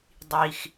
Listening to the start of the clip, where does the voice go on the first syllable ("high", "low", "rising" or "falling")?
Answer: low